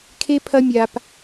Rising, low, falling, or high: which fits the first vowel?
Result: high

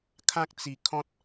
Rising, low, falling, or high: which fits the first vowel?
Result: high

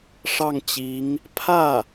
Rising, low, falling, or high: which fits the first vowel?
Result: falling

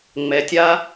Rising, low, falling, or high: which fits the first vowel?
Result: low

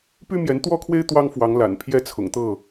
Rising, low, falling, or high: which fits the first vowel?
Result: high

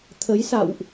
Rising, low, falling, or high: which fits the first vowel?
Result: rising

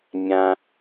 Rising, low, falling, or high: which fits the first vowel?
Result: low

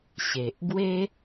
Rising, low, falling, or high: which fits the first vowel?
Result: low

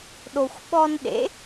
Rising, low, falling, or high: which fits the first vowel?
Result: low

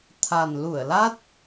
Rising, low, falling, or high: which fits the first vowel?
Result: low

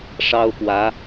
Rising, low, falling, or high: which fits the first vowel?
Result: high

